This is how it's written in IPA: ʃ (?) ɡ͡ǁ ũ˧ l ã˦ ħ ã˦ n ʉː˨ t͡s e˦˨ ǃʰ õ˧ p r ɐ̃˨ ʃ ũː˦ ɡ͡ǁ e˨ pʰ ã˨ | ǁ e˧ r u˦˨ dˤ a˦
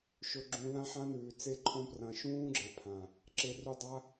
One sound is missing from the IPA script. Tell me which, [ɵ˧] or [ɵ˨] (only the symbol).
ɵ˧